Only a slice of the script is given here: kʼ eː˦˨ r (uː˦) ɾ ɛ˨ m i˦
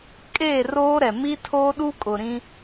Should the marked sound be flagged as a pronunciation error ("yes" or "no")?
yes